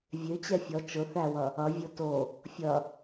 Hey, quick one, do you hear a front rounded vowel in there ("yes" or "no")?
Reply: yes